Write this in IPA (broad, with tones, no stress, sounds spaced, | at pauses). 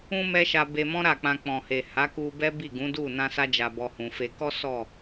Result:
ũ˧ m ɛ˦ ʃ a˧ b e˧ m ɔ̃˦ ɾ a˦˨ k͡p ã˧ k͡p ɔ̃˨ h e˨ h a˨˦ k u˧ b ɛ˦ b i˦˨ ɡ ũ˨˦ d u˦˨ n ã˧ s a˧ d͡ʒ a˨ b ɔ˧ h ũ˨ f e˧ k ɔ˦ s ɔ˦˨